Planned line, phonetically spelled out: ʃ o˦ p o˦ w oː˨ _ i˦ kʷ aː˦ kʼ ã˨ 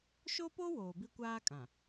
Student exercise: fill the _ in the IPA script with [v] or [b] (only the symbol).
b